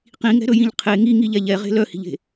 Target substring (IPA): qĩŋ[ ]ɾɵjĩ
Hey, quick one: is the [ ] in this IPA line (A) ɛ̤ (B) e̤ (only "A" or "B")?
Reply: A